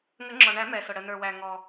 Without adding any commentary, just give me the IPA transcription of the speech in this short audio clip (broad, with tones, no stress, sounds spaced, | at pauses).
ŋ ə˨˩˦ ŋ͡ǁ ɔ˩ ɳ æ˨˩˦ m ɛ˩ s ʊ˩ ɽ ə˩ n ə˞˩ w æ˩ ŋ ɔ˩